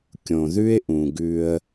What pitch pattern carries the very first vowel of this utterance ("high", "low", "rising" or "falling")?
low